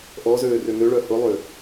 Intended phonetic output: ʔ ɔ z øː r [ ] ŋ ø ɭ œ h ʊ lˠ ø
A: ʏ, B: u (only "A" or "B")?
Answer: A